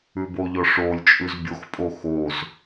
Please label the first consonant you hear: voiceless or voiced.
voiced